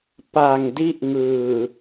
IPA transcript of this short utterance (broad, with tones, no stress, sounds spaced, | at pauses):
p a˨˩ ŋ d i˥˩ ʔ ŋ ɯː˨˩